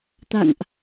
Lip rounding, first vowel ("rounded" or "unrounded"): unrounded